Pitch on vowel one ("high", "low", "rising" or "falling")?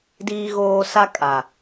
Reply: high